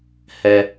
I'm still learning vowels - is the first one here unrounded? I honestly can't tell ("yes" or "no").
yes